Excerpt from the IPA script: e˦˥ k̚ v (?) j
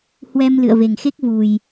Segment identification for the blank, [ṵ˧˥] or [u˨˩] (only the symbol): u˨˩